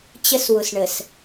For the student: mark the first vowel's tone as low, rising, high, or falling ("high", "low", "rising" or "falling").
high